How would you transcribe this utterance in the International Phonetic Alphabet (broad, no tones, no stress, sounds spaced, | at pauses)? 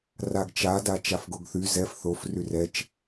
r a ɡ t͡ʃ a d a t͡ʃ a f ɡ o ɡ θ y z ɛ f θ o f r y r ɛ t͡ʃ